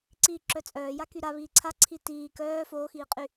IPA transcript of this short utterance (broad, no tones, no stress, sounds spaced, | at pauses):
ǀ iː ǁ œ t͡sʼ œː j a k y ɾ a β iː ǀʰ a ǀʰ i t iː k œː f oː x iː qʼ y